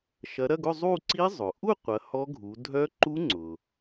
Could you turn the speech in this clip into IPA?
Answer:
ʃ ɐ˨˦ ɾ ɐ˧˥˧ ɡ ʊ˥˧ zˤ u˥˧ ǀ i˦˥ zˤ ʊ˩ ʔ u˥˧ qʷ ɐ˨˦ h ɔ˦˥ ɡʱ u˨˦ dʱ œ˦˥ ǃ u˦˥ ŋ͡ǀ ʊ˩

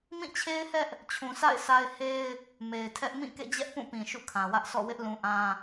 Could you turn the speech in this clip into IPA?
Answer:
m ĩ˦˨ t͡ɕʰ e˦ ɪ̯ h ɛ˦ ʔ | t͡ɕʰ ũ˨ s a̰˦˨ ɪ̯ sʰ a˦ ɪ̯ h e˦ ɪ̯ | m e˨ ɪ̯ tʰ ɛ˦ ʔ m ĩ˦˨ k ḛ˦˨ d͡ʑ ɛ˦ ʔ p ũ˦˨ p ĩ˨ ʃ ṵ˦˨ kʰ ã˨ w ä˦ ʔ sʰ ɔ̰˦˨ w ɪ˦ ʔ l ũ˨ ʔ ã˦

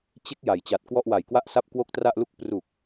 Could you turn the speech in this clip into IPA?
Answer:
t͡ɕ e˦˥ k̚ j a˩˦ j t͡ɕ a˨˩ t̚ k w ɔ˥˩ ʔ w a˨˩ j k w a˥˩ ʔ s a˥˩ p̚ k w o˥˩ k̚ t r a˥˩ ʔ l u˥˩ k̚ p r u˨˩ k̚

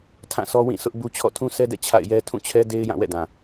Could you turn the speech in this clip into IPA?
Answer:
tʰ ã˦˨ sʰ ɔ˦ w ĩ˦˨ sʰ ʊ˦ ʔ b u˦ t͡ɕʰ ɔ̰˦˨ tʰ ũ˦ sʰ ɛ˦ d ɛ̰˦˨ t͡ɕʰ a̰˦˨ ɪ̯ j ɛ˦ tʰ ũ˦˨ t͡ɕʰ ɛ˦ d e˦ ɪ̯ j ã˦˨ w ɛ̰˦˨ d ã˨

